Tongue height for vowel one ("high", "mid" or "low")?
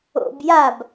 mid